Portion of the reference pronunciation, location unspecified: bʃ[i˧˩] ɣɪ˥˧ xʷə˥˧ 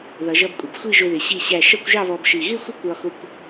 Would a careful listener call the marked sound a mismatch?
no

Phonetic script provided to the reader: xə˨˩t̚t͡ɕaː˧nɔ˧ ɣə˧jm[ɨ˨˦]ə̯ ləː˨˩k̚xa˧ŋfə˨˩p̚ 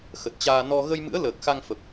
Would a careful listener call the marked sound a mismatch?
yes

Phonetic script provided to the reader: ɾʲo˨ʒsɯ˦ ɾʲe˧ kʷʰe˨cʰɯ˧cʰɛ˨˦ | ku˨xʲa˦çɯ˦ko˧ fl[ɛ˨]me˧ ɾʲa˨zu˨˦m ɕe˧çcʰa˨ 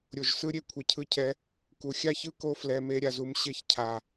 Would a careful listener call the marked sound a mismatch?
no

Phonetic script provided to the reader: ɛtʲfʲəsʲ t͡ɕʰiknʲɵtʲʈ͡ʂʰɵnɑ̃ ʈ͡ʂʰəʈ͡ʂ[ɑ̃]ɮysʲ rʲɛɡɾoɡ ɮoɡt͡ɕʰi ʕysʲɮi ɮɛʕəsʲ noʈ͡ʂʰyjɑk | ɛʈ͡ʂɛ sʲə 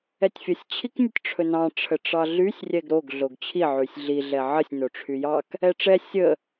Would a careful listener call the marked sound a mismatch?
yes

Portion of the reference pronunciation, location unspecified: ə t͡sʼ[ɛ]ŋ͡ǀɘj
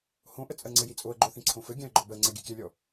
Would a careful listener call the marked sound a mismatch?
yes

